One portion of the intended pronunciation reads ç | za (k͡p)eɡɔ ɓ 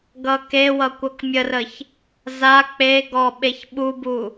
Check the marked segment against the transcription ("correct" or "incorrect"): correct